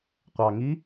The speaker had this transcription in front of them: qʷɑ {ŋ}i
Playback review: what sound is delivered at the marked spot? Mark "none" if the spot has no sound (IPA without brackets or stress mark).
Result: ŋ